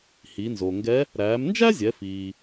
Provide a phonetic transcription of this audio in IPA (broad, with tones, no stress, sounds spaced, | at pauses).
h i˩˧ n z o˩ ŋ ɡ ɛ˧˥ | ɾ æː˩˧ m n d͡ʒ æ˥ zʲ ɛ˩˧ f iː˩